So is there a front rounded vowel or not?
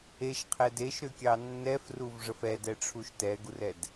yes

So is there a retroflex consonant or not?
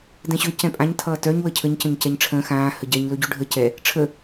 yes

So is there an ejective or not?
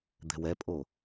yes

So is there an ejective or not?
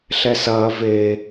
no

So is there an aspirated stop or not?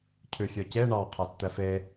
yes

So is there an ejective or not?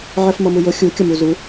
no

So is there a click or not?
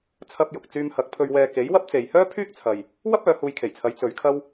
no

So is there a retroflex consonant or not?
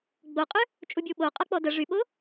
yes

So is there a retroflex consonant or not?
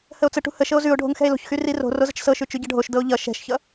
yes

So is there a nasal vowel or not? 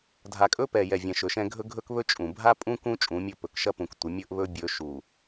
yes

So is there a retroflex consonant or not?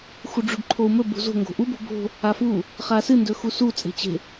yes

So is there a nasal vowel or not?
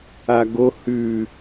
no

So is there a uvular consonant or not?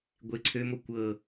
no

